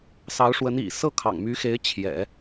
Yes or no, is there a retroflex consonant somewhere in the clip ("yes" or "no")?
yes